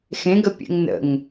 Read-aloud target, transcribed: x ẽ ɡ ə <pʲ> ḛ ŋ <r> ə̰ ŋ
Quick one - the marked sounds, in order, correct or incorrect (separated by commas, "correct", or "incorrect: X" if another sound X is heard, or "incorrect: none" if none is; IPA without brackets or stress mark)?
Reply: correct, incorrect: n